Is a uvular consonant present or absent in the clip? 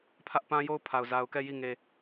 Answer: absent